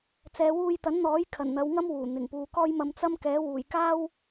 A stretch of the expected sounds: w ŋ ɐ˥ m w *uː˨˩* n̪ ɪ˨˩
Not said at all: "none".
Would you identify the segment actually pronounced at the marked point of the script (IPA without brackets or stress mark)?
uː˨˩